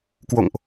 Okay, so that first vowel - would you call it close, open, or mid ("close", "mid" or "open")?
mid